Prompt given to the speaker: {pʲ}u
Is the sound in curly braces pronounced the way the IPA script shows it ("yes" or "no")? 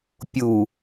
yes